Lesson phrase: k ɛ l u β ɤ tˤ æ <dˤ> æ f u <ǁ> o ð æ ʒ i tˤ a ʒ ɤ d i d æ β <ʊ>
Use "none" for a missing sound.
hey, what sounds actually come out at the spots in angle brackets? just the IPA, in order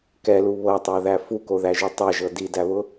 ð, k, ʊ

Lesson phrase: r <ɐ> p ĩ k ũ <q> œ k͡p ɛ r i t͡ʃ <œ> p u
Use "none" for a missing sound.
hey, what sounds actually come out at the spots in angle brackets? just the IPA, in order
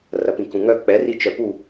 ɐ, ŋ, œ

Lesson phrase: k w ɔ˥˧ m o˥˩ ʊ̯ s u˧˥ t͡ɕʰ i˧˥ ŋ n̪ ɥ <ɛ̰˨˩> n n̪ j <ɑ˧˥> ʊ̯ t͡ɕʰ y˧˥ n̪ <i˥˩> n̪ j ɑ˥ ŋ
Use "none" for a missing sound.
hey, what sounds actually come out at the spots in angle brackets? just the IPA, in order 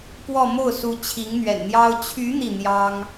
ɛ̰˨˩, ɑ˥, i˥˩

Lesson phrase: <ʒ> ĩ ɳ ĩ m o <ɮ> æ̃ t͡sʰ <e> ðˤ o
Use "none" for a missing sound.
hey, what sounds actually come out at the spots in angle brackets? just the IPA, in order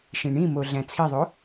ʃ, ɮ, i

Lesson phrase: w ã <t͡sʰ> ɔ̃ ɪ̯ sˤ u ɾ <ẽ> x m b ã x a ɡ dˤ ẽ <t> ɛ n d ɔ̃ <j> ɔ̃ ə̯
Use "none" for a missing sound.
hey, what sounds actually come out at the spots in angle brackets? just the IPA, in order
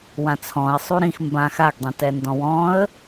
t͡sʰ, ĩ, t, w

